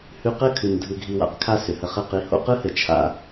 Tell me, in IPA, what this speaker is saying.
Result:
h ʉ˧ q ɘ˦˨ kʰ ʉ˨ n dʱ ɯ˧ ɡʱ i˧ w a̰˦ q kʰ a˦ s ʏ˨ h ə˧ χ ɘ˦˨ q i˧ h o̰˦ q ɯ˦ h ɘ˨ t͡ʃʰ a̰˦

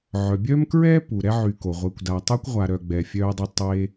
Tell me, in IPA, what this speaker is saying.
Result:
ʕ œ˨ bʲ œ˥ m k ɹ ɛː˥ p u˩ ɾ ɛ˥ ʕ y˨ k o˩ ʁʷ ɛ˨ kʷ d a˨ tˤ o˥ kʷ ʁʷ a˨ ɾ œ˨ ɡ͡b ɛː˨ fʲ œː˦ dˤ e˦ tˤ e˦

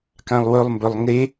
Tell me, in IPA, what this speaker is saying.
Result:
k ã lˠ w ɵ lˠ m b ɵ lˠ ŋ e

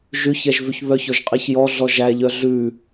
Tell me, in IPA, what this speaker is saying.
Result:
ʒ ʉ ç ɛ ʒ v ʉ ç β œ ç ɔ ʒ qʼ i ç j ɔ ɮ ɔ ʒ æ ʎ œ ɮ ʉ

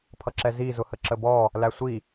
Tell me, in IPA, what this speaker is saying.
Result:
pʰ ʌ ǁ ɛ z i z ʊ h ə ǁ ə b ɔ | l æ sʷ i

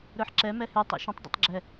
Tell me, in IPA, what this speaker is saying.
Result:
ɾ ə˞ ħ ǁ ɛ m ɛ h ʉ tˤ ḛ ʃ ə̃ tˤ dˤ ḛ tˤ ɡ͡ǁ ɛ

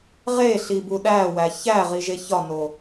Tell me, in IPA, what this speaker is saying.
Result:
ʁ e ɬ i b u ɗ æ w æ ç æ ʁ i ʒ e ç ɒ n o

